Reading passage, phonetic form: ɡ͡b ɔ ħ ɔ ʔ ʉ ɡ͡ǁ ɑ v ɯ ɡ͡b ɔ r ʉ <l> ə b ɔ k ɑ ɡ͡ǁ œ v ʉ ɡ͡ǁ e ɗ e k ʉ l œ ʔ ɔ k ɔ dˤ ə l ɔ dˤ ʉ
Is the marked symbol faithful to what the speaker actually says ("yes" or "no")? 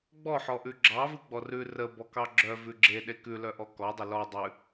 no